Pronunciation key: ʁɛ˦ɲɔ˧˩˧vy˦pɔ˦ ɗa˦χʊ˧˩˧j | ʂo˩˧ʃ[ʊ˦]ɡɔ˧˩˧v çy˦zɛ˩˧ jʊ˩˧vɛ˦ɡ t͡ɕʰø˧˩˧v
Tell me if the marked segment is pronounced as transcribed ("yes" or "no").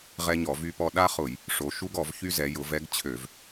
no